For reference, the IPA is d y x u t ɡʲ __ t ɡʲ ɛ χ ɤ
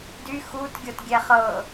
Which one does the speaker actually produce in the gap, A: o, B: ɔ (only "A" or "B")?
A